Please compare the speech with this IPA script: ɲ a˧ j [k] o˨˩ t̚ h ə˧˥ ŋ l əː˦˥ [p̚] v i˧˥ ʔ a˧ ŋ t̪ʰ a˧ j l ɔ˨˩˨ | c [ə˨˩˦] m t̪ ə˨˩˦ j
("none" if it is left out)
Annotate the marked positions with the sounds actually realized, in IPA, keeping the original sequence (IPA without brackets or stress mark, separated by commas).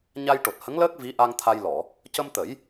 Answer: ʈ, k̚, ə˧